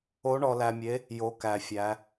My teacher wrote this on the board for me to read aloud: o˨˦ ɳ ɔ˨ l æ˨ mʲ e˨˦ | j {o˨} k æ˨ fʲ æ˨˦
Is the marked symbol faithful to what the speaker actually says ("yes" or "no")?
no